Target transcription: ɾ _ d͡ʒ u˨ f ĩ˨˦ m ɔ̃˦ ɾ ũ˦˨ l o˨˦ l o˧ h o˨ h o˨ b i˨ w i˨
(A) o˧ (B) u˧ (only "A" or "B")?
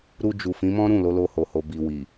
B